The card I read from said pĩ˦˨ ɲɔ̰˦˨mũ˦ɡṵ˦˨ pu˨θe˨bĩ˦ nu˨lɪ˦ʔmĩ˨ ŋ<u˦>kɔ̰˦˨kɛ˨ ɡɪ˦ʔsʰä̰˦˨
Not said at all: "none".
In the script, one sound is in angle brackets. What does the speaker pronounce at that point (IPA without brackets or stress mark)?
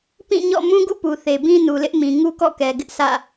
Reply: u˦